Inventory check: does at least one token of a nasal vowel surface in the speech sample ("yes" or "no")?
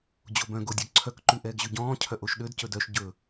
yes